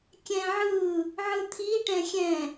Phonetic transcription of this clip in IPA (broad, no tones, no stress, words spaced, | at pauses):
kʲɛ̃ʕɯ | ʕɯt̪ʰi ʈɛ̃xʲɛ̃